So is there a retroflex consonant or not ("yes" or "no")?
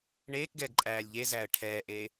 yes